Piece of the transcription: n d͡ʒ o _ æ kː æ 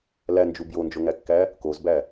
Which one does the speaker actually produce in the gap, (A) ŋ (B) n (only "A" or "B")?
A